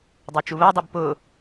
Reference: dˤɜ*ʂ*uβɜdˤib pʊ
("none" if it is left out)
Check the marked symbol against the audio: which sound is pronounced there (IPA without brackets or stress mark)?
t͡ʃ